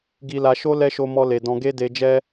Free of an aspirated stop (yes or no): yes